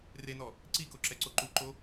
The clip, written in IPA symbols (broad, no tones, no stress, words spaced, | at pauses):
renɔ | ǀikoǁɛǀo ǃuǃo